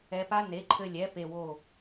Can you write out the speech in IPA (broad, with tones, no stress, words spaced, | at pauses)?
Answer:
ɛ˧pa˥ ne˩˥ǃʰɘ˧lʲɛ˩˥ pe˧wo˥˩